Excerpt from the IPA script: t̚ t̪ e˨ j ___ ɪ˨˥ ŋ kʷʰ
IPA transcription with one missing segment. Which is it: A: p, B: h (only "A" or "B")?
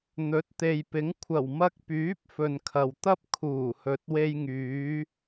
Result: A